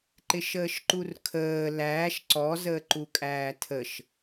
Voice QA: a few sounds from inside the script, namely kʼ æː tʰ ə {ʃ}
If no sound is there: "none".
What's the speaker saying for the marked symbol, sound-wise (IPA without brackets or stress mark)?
ʃ